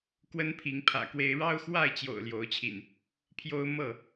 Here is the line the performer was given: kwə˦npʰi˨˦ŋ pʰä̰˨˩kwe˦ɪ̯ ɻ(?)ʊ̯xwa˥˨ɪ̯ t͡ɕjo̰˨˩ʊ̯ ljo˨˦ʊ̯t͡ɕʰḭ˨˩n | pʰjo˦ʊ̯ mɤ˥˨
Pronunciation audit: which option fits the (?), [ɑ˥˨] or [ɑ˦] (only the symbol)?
ɑ˦